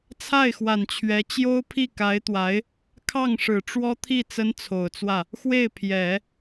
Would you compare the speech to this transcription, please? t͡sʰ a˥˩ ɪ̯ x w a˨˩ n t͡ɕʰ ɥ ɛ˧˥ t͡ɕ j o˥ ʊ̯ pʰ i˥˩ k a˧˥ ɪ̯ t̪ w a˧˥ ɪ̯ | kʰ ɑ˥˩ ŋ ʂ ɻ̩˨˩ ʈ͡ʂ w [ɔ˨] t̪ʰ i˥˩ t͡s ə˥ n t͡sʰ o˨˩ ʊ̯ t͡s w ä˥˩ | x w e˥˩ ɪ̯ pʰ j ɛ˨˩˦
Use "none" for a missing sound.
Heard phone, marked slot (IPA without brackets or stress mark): ɔ˥